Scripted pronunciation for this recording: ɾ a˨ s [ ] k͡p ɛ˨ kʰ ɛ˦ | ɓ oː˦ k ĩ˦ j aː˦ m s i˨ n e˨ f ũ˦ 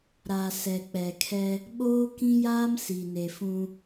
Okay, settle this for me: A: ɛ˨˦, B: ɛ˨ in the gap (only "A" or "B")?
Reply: B